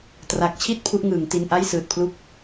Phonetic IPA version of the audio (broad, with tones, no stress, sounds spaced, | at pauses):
t r a˨˩ k̚ t͡ɕʰ i˥˩ t̚ pʰ u˦˥ ʔ ŋ ɯː˩˦ ŋ t i˧ n ʔ a˥˩ j s ɯː˨˩ t̚ pʰ l u˥˩ k̚